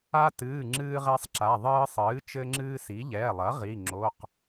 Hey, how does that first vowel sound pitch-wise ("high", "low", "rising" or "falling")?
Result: high